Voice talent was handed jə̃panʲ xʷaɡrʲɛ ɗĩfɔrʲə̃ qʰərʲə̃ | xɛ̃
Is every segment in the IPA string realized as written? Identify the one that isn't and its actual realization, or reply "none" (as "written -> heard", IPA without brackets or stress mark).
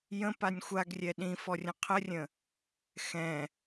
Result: none